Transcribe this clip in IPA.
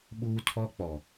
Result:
ɓuː˦tʰɔ˦ k͡pɔ˨

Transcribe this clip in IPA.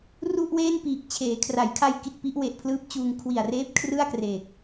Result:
ru˥˩ʔweː˥˩npiː˨˩k̚ t͡ɕʰeː˩˦kʰra˩˦jkʰa˧j ki˨˩t̚pi˦˥ʔ we˨˩ʔpʰlɯː˦˥p̚t͡ɕuː˧ŋ kʰwi˨˩a̯reː˦˥p̚ kʰrɯ˥˩a̯kreː˨˩k̚

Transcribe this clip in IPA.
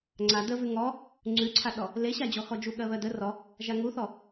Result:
ŋ͡ǀa dəvʉ ŋɔ | ŋ͡ǀʉǀʰaɗɔ | leɕad͡ʑɔxɔ d͡ʒuɠɜβɜdə rɔ | ʒaŋuθɔ

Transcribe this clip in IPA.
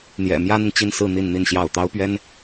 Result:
n̪jɛ̰˨˩ mjä˥n̪i˨ŋt͡ɕi˥˧nsɹ̩˥˧ n̪i˥˧nn̪i˥˧nɕjɑ˥˩ʊ̯ t̪ɑ˥ʊ̯pɥɛ˥n

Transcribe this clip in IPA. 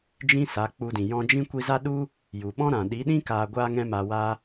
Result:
d͡ʒĩ˦sa˨˦k͡pu˧dĩ˨ jɔ̃˧d͡ʒĩ˦ kʷi˧za˦ɗu˦ | ju˨ɓɔ̃˦ɾã˨ ɗi˨˦ɗĩ˦ kaː˧ɡʷa˦ ŋɛ̃˦maː˧waː˦

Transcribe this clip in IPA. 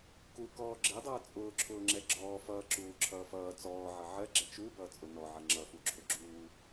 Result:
kukɔː ɡ͡ǁɪdˤʌː t͡sʼʊːǁʰʊːŋ͡ǁɛ ɡ͡ǁɔː fʌːǁuːǁʰʌː fʌː t͡sɔːʕʌ ʕɜɡ͡ǁɛ t͡ʃubʌːt͡sʼʊ nɔʕʌ ŋ͡ǁʌfuǁʰʊɡ͡ǁuː

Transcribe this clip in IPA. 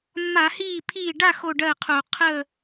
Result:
mːa˧˩˧hiː˥˩pʰiː˥˩ ɖa˥˧ xo˥˧ɖɜː˥˩qʰo˧˩˧ qʰə˥˧

